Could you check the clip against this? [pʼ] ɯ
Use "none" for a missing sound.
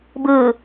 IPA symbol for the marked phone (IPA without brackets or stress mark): b